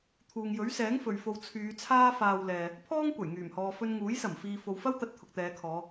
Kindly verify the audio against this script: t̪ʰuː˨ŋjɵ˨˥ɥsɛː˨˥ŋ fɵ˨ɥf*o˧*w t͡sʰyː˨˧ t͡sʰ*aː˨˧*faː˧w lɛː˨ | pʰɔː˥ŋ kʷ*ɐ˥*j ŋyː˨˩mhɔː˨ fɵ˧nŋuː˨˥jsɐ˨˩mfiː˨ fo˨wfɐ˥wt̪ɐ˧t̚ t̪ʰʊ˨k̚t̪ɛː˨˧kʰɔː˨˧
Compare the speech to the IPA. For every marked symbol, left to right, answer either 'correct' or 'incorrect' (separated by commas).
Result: correct, incorrect, incorrect